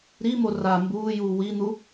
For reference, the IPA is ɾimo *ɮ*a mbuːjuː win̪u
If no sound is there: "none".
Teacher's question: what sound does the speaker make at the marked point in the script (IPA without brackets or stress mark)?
r